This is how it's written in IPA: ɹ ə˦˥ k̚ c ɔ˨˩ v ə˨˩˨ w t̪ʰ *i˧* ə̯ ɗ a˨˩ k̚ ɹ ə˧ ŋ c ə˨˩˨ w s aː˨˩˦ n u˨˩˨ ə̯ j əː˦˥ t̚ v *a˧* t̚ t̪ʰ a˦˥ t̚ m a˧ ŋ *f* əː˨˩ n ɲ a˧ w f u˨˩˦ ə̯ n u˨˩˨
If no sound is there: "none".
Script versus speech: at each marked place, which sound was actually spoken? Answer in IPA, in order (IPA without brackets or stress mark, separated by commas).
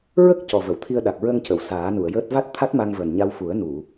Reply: i˧, a˦˥, v